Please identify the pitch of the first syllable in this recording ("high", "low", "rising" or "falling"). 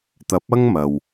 rising